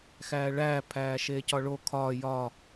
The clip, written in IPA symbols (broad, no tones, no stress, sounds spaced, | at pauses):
x æː ɭ æː pʰ æː ʃ eː c ɒ ɭ o kʰ ɒː j ɒ